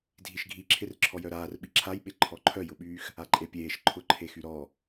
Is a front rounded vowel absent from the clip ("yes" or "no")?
no